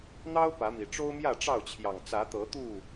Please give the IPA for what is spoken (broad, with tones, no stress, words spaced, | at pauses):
n̪ɑ˦ʊ̯ pä˨˦mi˨˩ ʈ͡ʂo˦ʊ̯mjä˥˨ʈ͡ʂɑ˥˨ʊ̯t͡ɕʰjɑ˨˩ŋ t͡sä˨˦t̪ɤ˨˦t̪u˥˨